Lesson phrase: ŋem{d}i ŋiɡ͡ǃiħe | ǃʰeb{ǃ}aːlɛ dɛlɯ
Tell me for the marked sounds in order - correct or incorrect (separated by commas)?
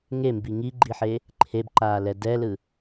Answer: incorrect, correct